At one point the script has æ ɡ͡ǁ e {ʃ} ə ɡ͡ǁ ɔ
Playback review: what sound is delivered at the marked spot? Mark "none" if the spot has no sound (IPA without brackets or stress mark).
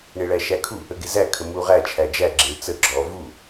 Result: t͡s